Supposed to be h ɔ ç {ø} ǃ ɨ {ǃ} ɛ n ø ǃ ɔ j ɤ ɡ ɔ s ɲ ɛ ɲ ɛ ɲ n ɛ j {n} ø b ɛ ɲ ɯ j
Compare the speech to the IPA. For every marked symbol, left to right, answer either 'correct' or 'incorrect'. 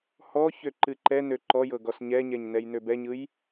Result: correct, correct, correct

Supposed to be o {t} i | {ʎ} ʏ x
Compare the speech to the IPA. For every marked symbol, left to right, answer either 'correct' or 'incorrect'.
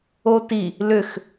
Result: correct, incorrect

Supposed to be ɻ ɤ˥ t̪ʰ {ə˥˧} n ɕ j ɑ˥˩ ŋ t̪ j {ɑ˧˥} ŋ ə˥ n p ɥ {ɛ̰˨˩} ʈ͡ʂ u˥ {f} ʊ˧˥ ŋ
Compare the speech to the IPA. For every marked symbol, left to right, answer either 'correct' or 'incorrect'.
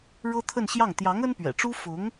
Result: correct, correct, correct, correct

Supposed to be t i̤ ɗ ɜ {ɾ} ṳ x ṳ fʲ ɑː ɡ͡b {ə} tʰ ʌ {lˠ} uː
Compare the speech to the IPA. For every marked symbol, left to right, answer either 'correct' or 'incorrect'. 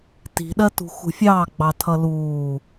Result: incorrect, incorrect, incorrect

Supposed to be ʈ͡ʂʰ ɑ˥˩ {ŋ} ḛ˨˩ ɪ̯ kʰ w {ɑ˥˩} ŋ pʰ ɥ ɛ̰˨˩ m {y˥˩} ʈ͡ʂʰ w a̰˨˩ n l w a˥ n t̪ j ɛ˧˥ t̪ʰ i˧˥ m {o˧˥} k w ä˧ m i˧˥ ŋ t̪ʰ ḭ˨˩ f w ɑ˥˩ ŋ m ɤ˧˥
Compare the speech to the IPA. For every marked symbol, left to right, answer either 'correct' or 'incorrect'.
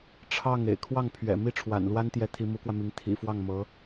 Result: correct, correct, incorrect, incorrect

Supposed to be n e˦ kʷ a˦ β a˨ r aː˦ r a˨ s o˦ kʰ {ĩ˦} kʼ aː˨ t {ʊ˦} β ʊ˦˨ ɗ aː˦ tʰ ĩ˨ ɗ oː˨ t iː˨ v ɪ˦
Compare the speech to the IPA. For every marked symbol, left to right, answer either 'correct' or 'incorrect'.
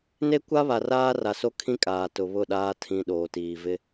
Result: correct, incorrect

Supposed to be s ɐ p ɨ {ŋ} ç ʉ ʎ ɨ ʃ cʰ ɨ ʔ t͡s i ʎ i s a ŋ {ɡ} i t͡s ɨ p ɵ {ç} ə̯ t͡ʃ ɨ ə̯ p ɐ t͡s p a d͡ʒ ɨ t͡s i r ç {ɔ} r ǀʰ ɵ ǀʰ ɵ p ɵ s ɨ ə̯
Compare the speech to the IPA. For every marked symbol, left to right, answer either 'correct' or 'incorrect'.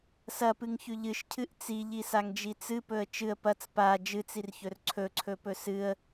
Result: correct, incorrect, incorrect, incorrect

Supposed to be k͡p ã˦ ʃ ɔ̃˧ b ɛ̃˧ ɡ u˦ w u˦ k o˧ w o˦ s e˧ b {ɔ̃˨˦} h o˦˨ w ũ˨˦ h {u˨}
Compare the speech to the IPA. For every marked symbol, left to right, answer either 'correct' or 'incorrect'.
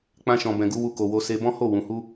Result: incorrect, incorrect

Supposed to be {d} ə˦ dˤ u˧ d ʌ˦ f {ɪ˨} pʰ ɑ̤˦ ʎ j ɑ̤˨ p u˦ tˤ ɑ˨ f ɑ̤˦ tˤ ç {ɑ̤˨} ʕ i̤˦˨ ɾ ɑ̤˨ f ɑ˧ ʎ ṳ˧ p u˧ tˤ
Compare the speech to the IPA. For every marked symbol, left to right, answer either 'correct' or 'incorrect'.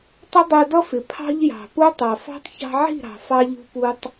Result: incorrect, correct, incorrect

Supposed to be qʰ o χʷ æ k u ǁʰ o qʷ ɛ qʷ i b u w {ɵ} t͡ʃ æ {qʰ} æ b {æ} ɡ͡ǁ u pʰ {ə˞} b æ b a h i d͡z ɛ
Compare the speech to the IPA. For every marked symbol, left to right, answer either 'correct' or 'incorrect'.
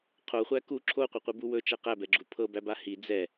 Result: correct, incorrect, incorrect, incorrect

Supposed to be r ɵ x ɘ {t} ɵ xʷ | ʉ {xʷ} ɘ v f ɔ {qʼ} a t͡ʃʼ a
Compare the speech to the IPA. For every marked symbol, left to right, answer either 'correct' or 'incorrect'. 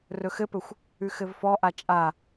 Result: incorrect, incorrect, incorrect

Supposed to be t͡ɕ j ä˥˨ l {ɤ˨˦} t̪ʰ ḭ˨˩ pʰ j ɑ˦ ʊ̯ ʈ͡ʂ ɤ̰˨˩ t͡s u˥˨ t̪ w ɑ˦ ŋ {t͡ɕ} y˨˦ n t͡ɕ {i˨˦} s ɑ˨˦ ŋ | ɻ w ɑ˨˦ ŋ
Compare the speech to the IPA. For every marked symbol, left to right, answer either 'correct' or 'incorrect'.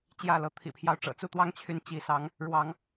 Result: correct, incorrect, correct

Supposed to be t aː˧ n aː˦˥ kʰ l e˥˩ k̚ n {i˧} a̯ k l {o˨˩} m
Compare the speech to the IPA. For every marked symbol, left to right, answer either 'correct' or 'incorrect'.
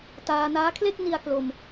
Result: correct, incorrect

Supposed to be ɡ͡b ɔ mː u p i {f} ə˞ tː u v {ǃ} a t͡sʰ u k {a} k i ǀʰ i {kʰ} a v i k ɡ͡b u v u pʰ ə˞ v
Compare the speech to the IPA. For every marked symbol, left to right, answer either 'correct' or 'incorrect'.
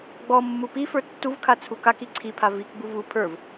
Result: correct, incorrect, correct, incorrect

